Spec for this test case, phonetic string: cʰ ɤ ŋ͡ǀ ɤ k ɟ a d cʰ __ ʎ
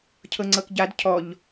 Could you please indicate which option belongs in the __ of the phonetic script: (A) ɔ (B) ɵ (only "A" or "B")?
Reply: A